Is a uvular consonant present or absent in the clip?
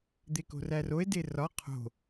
present